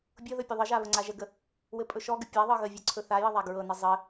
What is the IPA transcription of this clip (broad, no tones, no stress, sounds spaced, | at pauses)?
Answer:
bʲ ɤ ð ɵ pʲ ə ðˤ ə ʒ a β ə ŋ͡ǀ a ʒ ə ɡ ə | w ɘ pʼ ɵ ʃ ɔ ɡ ə pʲ a ðˤ ɤ ɣ ə vʲ ɤ ǀʰ ɵ θ a j ɘ ðˤ a ɡ ɹ ɤ n ɘ zˤ ɘ